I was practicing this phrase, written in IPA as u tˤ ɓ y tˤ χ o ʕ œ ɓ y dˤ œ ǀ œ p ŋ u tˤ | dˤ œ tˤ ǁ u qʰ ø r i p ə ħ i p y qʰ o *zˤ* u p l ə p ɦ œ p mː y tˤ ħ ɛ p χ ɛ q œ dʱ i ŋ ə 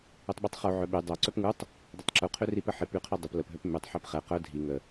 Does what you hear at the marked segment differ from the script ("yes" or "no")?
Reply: yes